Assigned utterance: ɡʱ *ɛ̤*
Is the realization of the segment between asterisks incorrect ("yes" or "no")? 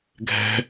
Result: no